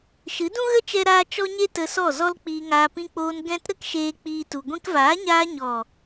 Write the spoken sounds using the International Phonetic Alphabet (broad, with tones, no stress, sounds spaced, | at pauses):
ʃ ɨ˨˦ d ũ˦ ɣ ə˦ t͡ʃ ɛ˦ ɾ aː˦ t͡ʃ ɔ˦ ɲ e˦ t ə˧ s ɔ˦˨ z ɔ˦ l k͡p iː˧ ŋ aː˧ p ĩ˧ k͡p oː˧ n ɡ ɛ̃˦ t ɾ ə˦ k ʃ eː˧ k͡p iː˦ t u˧ ɡʷ ĩ˧ k v aː˨˦ ɲ aː˧ ɲ ɔ˨